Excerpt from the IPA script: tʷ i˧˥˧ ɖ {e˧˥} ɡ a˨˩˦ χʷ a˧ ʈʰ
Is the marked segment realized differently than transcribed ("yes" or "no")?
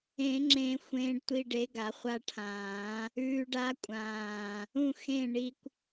no